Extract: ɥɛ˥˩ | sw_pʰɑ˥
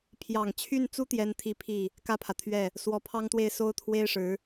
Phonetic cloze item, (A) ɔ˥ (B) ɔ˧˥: B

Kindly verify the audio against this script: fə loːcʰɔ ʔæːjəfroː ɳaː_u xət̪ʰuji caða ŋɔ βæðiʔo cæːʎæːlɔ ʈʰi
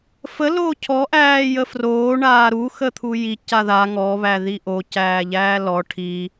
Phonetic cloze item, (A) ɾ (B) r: A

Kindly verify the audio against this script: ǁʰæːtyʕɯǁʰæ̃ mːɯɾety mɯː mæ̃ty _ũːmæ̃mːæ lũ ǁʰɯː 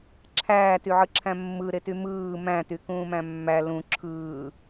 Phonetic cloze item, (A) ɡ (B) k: B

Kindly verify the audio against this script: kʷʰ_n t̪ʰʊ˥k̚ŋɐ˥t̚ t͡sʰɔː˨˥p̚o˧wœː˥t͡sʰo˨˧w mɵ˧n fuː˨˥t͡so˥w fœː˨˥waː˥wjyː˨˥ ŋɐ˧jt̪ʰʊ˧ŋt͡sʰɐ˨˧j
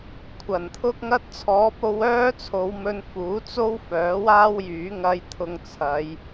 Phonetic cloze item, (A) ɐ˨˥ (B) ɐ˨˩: B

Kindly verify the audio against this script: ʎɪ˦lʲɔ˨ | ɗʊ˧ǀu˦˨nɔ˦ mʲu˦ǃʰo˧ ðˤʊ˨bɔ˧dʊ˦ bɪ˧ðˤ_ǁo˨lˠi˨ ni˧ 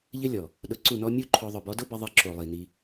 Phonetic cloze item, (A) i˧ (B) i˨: A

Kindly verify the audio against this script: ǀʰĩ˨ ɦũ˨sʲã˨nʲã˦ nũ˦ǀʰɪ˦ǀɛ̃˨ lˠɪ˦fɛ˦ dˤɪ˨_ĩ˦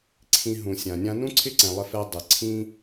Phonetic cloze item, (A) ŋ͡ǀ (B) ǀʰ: B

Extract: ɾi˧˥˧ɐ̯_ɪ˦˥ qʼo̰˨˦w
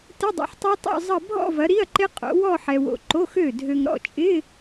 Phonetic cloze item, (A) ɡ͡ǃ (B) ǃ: B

